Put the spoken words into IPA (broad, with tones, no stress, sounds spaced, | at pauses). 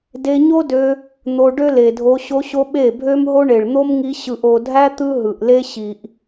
d e˧ ɲ o˦ d ø˧ | n̪ o˧ ɖ ø˦ l e˨ dʱ o˧ ɕ o˧ ɕ o˧ ɓ e˦˨ bʱ ø˦ m ɦ o˦ ɳ e˨ ɭ n̪ o˦ m ŋ i˧ ɕ ɯ˨ ʔ o˨ dʱ æ˦ t̪ ɯ˦ ɦ ɯ˨ ʔ l e˦ ɕ i˨ ʔ